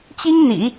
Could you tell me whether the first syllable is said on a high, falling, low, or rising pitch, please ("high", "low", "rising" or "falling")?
high